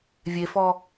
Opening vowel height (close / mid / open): mid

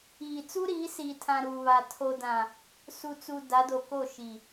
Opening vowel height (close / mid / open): close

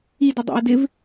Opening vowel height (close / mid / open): close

